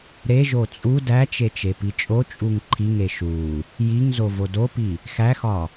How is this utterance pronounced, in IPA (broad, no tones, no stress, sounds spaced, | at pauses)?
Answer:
ɾ e ʒ o t͡sʼ u d æ t͡ʃ e t͡ʃ e p i t͡ʃʼ o t͡ʃʼ u ŋ ǃʰ i ŋ e ʃ u | j i ŋ z o v o d o p i | x æ x ɒ